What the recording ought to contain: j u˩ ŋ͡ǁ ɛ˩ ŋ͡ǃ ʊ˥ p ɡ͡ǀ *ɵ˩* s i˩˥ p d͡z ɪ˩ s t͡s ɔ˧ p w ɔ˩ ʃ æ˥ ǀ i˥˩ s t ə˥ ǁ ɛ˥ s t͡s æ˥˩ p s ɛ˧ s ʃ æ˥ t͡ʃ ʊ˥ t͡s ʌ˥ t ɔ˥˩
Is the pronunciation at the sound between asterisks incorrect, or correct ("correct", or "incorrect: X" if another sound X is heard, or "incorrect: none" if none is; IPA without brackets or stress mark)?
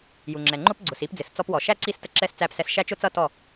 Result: incorrect: ʊ˩